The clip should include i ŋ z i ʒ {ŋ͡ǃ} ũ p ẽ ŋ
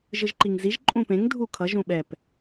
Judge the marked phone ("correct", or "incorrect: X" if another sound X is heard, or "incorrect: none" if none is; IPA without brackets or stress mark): incorrect: ǃʼ